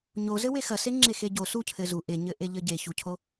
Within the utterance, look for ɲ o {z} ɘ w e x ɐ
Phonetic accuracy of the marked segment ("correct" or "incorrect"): correct